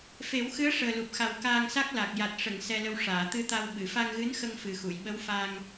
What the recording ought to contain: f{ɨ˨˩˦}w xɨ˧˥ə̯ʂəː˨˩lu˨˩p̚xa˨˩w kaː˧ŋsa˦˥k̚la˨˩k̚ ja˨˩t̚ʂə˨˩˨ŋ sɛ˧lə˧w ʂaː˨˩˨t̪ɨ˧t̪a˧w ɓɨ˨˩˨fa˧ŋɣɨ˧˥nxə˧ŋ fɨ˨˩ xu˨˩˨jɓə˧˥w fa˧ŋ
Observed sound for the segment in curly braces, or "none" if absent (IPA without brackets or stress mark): e˨˩˦